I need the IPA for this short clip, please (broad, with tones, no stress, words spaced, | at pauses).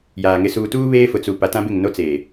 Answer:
jaː˨ ŋɪ˨suː˨tuː˦ βeː˦fʊ˨t͡su˨ pa˨tã˦bɪ˦˨ŋno˦ t͡seː˨